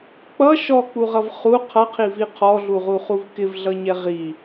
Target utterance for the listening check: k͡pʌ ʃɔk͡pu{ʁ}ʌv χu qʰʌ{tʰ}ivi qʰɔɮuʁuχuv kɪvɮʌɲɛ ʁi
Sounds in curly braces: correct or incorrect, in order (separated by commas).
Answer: correct, incorrect